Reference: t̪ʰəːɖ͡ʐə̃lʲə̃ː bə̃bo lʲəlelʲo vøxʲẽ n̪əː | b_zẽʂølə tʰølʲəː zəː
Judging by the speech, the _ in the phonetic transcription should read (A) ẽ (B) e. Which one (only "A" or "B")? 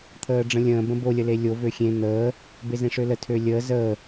B